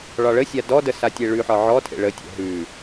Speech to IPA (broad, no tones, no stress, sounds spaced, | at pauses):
ɭ ɒ ɭ ə sʲ a d ɔ d ə s a tʲ e ɭ ʉ ħ ɒ ʕ ɔ tʰ ḛ ɭ ə tʲ ə̰ ɦ ʉ